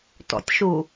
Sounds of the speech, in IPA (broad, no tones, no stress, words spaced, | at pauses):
tɔ̰tʲʃu